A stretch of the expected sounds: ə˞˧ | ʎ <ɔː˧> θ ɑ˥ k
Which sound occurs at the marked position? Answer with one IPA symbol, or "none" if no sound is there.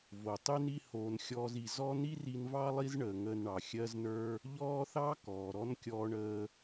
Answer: ɔː˥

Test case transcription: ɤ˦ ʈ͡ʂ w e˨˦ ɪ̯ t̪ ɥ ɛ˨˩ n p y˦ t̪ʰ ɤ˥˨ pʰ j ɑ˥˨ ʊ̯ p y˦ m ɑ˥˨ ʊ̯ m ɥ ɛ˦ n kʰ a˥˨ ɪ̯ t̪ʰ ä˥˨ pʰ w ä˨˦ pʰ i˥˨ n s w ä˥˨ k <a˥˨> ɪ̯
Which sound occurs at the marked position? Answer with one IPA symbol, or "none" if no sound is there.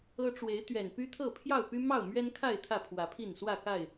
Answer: a˥˨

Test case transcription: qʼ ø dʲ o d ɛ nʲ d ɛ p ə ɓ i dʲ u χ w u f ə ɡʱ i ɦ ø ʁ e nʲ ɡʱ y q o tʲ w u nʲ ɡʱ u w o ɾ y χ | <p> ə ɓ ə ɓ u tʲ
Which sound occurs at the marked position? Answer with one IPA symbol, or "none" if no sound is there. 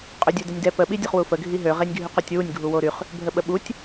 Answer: bʱ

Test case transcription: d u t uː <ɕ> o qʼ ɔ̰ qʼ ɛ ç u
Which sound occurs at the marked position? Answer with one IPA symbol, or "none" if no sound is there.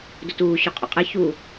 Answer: ɕ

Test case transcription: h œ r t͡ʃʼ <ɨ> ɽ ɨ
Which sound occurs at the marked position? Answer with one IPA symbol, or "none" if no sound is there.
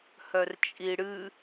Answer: i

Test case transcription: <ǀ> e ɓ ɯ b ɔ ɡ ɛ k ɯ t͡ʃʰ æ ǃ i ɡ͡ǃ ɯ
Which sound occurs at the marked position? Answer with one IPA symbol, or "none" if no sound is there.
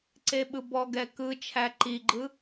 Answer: ǀ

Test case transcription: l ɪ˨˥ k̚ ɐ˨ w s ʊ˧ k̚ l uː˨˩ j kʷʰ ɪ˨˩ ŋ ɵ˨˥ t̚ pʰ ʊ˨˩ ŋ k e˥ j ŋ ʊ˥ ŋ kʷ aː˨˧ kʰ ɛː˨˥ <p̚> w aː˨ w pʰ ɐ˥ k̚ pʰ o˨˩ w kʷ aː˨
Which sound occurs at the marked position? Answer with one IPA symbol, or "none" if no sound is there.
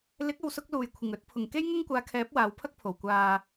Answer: p̚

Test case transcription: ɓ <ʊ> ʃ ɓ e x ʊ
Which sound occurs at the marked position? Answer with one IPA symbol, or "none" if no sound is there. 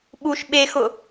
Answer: u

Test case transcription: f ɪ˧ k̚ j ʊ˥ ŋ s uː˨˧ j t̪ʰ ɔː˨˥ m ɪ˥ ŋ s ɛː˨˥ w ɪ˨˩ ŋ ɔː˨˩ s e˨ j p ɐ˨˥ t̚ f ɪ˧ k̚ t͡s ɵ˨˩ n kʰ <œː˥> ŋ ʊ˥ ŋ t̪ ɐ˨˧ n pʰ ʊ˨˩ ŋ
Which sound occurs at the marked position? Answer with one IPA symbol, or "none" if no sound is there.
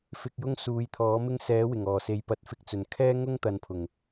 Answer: ɛː˥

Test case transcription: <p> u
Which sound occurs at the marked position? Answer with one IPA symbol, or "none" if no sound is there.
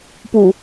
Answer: p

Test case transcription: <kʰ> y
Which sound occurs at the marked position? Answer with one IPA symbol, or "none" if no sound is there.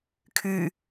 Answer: kʰ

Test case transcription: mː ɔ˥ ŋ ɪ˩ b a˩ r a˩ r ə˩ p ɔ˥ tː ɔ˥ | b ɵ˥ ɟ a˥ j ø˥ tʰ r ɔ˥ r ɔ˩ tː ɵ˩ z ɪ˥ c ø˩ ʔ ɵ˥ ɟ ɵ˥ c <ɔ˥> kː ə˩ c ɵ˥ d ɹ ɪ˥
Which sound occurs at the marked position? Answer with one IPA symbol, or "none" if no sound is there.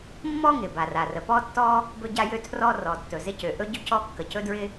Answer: ɔ˥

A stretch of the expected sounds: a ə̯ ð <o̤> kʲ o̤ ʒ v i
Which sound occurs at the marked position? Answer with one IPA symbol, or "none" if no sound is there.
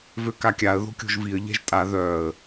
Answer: o̤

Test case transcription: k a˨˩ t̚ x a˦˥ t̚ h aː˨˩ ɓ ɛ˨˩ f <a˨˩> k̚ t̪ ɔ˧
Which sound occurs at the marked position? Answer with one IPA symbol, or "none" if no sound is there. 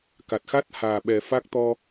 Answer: a˦˥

